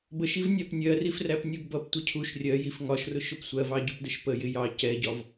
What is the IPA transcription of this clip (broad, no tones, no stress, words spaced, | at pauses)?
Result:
bəʃiv nʲɑpnʲɜrif ræpnʲuɡbʌptʷə cʰuʃ rʲɜjif ŋɒʃrʊ ʃʊpsʷɜvɑ ɟʊpdəʃpəjɪ jɑ cɛɟɒv